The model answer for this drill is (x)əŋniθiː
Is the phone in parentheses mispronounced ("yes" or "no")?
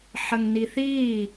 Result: yes